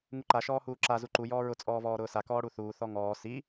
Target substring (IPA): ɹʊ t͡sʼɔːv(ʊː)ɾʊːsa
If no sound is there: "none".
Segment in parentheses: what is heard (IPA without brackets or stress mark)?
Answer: ɔː